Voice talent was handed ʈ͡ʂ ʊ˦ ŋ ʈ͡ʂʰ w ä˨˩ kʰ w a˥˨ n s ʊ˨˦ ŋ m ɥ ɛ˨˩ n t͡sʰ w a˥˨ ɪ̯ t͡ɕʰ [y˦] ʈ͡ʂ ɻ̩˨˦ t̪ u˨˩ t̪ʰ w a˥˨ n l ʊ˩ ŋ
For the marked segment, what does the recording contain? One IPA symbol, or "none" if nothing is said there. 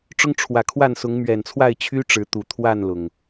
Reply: y˦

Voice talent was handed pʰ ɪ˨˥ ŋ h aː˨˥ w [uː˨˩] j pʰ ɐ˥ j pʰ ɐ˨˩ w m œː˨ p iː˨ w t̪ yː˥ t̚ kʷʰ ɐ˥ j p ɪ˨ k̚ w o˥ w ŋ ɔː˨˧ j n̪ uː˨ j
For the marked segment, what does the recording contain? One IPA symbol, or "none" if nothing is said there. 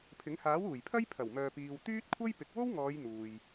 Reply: uː˨˩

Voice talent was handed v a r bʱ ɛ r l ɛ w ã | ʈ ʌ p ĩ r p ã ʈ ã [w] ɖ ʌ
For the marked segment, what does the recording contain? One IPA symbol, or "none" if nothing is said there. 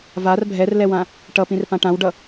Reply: w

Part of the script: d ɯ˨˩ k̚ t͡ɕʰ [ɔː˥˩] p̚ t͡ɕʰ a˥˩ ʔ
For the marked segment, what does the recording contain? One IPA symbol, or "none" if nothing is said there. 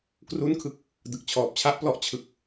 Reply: ɔː˨˩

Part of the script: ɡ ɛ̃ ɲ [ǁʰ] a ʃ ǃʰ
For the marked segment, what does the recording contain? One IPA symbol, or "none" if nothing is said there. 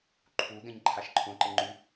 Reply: ǃʰ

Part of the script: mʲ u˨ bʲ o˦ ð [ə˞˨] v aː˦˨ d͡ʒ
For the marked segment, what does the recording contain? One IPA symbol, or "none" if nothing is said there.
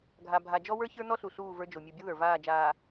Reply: ə˞˨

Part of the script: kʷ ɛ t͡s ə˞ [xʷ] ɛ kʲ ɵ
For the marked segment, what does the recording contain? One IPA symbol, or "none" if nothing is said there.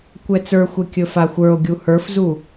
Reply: xʷ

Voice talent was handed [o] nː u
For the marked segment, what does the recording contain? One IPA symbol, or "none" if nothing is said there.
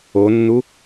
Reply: o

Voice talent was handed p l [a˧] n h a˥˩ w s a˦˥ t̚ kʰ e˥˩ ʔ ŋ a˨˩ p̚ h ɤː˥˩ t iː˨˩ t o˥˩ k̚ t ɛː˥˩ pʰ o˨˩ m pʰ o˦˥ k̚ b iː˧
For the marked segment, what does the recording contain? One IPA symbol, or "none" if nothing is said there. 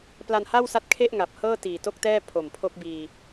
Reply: a˧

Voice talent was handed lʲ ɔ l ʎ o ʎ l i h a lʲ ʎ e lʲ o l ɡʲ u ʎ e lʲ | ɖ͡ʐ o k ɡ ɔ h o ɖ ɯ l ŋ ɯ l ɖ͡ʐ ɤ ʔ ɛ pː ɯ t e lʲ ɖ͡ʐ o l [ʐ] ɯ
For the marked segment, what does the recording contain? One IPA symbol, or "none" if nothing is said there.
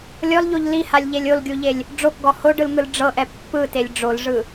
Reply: ʐ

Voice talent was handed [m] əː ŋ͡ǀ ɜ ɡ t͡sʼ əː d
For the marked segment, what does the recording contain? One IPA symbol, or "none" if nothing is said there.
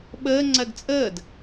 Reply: ɓ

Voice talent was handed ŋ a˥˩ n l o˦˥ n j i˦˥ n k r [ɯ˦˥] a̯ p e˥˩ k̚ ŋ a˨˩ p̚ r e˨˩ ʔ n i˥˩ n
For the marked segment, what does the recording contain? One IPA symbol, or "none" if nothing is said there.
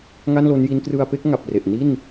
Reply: ɯ˧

